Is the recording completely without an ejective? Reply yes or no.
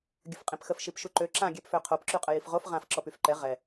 no